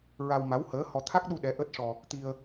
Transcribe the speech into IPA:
ɹa˧wma˧˥whəː˧˥hɔ˧ t̪ʰa˦˥k̚ɗu˧ ɗɛ˧˥ʔəː˦˥t̚ʂɔ˧ | t̪i˧ə̯

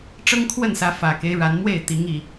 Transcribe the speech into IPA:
ʈ͡ʂɤ˦ŋkʰwə˥˨nsä˨˦ fä˨˩ke˦ɪ̯ ɻa˨˦nmwe˥˨ɪ̯t̪i˨˦ŋ i˨˩

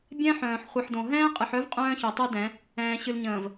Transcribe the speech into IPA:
bʲɛ̃˦ħœ̃ː˨ħ χʷɨ˨ħdõ˨ ɦɛ̃ː˦qʼɨ˨ħœ˦v qʼœ̃ː˦çœ˨tˤu˦dɛ̃˨˦ | ɛ̃ː˨ ɕɨ˨lɲə̃ː˨v

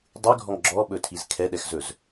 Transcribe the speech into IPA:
dˤyɡʱɔŋ ɡ͡ǁɔɓɵtʰiz kʰɛɗɛxzɵz

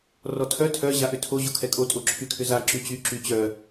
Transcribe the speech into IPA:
rɔtʰœ tʰœ ʑaʔʏtʰo ʑokʰɛkʼo tʼoǁʰykʰʏza ǁyt͡ɕy ǁyt͡ɕœ

